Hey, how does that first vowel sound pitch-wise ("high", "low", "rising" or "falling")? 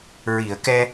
low